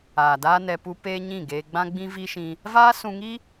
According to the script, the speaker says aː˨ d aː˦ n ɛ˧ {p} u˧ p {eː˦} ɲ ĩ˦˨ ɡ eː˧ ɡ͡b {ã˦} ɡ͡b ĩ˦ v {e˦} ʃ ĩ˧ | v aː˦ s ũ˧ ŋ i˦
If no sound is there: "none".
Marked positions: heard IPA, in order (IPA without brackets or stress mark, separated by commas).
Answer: p, eː˦, ã˦, i˦